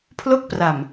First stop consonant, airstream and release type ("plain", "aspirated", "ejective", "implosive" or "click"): aspirated